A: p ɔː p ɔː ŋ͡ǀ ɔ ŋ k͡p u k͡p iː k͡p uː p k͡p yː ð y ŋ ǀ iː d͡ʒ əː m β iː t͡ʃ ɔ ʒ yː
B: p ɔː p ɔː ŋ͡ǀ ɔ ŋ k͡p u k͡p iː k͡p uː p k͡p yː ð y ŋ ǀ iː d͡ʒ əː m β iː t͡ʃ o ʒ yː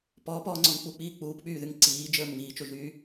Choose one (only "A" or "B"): B